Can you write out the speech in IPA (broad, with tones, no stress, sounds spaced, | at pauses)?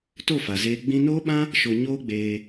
t o˦˨ f a˨ z eː˧ ɡ͡b ĩ˧ n oː˦ ɓ ã˦ | ʃ o˧ ɲ oː˦ ɡ͡b eː˧